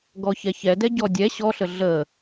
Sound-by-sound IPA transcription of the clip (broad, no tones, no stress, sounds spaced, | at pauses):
ɡ ɔ ç ɛ ç ɛ d ɛ ɟ ɔ dʲ ɛ ɕ ɔ ɬ ə ɮ ə